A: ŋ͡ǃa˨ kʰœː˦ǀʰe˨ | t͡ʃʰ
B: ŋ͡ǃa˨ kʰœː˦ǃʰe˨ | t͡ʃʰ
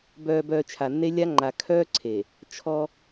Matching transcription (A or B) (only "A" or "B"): A